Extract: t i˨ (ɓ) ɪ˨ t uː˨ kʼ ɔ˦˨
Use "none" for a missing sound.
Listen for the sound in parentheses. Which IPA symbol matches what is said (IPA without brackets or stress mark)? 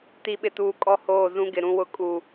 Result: ɓ